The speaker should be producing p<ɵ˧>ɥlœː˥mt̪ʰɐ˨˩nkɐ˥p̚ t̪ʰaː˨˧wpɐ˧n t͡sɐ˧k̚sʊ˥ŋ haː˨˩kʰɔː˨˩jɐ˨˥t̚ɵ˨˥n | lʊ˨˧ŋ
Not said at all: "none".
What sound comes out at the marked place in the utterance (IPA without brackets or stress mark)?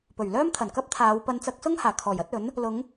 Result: ɵ˨˩